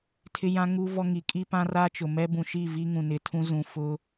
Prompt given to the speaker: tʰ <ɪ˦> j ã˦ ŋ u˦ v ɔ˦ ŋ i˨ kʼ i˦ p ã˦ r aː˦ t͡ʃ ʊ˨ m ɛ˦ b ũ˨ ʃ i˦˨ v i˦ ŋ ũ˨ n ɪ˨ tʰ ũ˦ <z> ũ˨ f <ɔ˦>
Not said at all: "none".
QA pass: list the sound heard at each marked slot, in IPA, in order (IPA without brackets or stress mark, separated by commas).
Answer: ɪ˦, z, ʊ˦